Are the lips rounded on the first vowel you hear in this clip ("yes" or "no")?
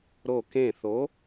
yes